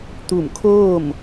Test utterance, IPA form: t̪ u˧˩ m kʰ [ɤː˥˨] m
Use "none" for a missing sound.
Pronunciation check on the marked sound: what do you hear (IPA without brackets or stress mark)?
oː˥˨